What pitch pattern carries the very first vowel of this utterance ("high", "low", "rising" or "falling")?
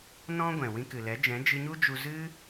high